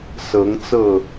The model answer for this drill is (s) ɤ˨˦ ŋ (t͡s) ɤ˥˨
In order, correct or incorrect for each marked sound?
correct, correct

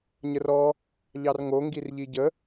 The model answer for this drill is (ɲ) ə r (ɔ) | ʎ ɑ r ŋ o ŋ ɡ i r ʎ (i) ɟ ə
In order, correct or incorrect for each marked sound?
correct, correct, correct

